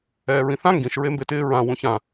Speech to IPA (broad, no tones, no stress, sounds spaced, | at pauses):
ɛː ɹ ĩ θ ã ŋ ɡ ĩ ʃ ɹ e m b e t ɪː ɹ ã w ũ ç ã